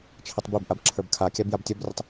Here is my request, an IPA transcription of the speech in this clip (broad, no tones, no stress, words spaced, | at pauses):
t͡ʃʰətˤbibʔab ǁʰə˞bkʰakʲab jabtʲɔbrʲətˤ